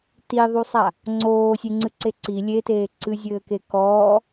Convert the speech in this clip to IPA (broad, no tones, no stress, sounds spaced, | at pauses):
t i ðˤ u sˤ a | ŋ͡ǀ oː sʲ e ŋ͡ǀ ɨ ǀ e ǀ i lʲ e t eː ǀ ɨ zʲ ɘː k e k ɔː